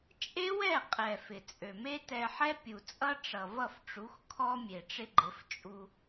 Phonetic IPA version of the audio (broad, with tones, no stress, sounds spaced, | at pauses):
t͡ʃʼ e˦ w ɛ˦˨ qʼ ɛ˨ f ɪ˨ t͡sʼ ø˨ m e˦ t ɛ˧ ħ ɛ˦ pʲ u˨ t͡sʼ ʌ˦ ʈ͡ʂ ʌ˨ v ʌ˦˨ f ʈ͡ʂ u˨˦ x kʰ ɔ˦ mʲ e˨ ʈ͡ʂ ɪ˦ ɡ͡ǃ ɪ˨˦ f t͡ʃʼ u˧